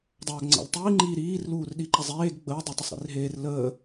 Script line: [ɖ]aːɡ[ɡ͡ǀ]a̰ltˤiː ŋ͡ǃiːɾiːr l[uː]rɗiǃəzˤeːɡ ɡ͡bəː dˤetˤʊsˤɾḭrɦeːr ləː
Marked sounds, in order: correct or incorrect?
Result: incorrect, incorrect, correct

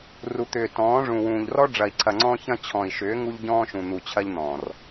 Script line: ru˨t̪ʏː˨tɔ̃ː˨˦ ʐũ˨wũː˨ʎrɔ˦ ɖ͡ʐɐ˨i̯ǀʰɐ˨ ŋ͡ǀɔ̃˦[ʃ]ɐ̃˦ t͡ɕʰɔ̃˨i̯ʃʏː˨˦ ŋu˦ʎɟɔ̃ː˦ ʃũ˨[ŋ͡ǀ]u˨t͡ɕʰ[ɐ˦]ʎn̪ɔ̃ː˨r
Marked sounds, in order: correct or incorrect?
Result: incorrect, incorrect, correct

